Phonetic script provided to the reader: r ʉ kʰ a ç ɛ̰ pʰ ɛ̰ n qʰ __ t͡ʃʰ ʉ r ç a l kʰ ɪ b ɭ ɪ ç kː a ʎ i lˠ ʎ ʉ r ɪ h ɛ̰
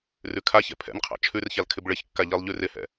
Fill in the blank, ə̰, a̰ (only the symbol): a̰